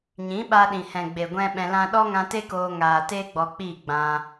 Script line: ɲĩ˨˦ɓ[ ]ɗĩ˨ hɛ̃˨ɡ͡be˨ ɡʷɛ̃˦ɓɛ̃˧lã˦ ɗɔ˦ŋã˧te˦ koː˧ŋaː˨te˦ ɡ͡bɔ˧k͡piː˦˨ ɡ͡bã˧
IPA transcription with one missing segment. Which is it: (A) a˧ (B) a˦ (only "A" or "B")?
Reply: A